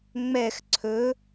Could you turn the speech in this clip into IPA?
ŋ͡mɛx ǀʰɵ

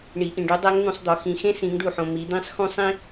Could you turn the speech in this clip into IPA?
ɳi˩˧ ʔĩ˩ɖu˧˥ dˤæ˧˥ŋn̪ũ˩˧sˤd̪ɒ˩˧ xĩ˩˧xẽ˥ sĩ˩˧ŋɖu˩ħõ˩ mi˩˧d̪ĩ˧˥sˤ xũ˧˥ sˤĩ˥

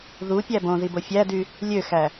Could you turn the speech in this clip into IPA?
ðupʲæ bõðibo fʲædy | lʲøxæ

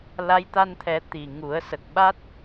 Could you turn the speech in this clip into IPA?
la˧˥j t̪a˧nt̪ʰɛ˨˩˦ t̪i˨˩ŋu˨˩˦ə̯ sə˨˩k̚ɓa˦˥t̚

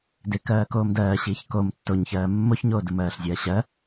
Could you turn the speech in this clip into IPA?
dɪ kɜːkoːmdɜːɕiːç kom tːoɲçɜː mːoçɲoː dumɜːɬzʲɜːɕɜ

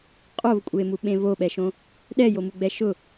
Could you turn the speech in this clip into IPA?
qʼovkʷʼemuɓẽ voɓɛʃõ | ɗɛjomuɡ͡bɛ ʃʊ

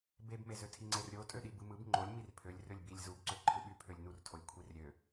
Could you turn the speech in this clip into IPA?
bebmezø tʰiŋ͡ǀerɾʲo tʼøɗibɯmɯb ŋ͡ǃolʲ mirpʰølʲ rølʲbilʲ zubǀø ǃʰɯɓy pʰølʲnurtʰolʲ kʷʰirɾʲø

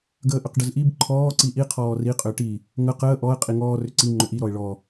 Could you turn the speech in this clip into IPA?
ɡəːʔʏqɖəzʔib ǃʰɔː ǀiʔi qʰɔːri qʼʏːʈi | ŋə qəː ʔɔə̯ qʼiŋɔː rʏǀi ŋ͡ǃʏʔi ɾɔɪ̯ɭɔ

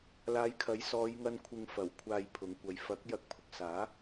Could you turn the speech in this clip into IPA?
laː˨˧jkʰɐ˨˥jsɔː˨˧jŋɐ˧n kʷʰɪ˨ŋfɐ˨˩w kʷʰaː˨j pʰʊ˨˥ŋkʷɐ˨˧j fɐ˨˥k̚ jɐ˧k̚pʰʊ˨k̚ saː˨˥

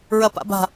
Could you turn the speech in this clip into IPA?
ɹɐpa̰ba̤

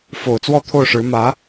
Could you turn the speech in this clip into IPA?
fo˨˩ʊ̯t͡swɔ˥˧t̪ʰo˥˩ʊ̯ʂɻ̩˧˥ mä˧˥

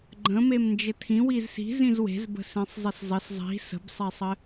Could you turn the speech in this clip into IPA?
ɡ͡ǃə̃ memnd͡ʒɘtʰĩ wizsi̤ zĩzwe̤z bə̤sẽsˤzˤɘszˤɘs zˤi̤ sə̤bsˤesˤɘ

